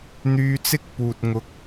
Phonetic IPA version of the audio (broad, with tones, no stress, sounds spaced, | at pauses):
n̪ yː˧ t͡s ɪ˥ k̚ p uː˨ t̚ ŋ ʊ˧ k̚